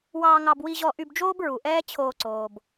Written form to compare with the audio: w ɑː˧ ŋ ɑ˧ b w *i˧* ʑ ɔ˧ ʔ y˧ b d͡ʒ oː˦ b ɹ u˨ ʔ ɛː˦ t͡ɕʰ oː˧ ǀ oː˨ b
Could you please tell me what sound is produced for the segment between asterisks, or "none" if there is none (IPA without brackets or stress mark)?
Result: i˧